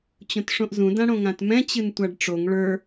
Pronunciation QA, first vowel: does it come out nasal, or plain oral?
nasal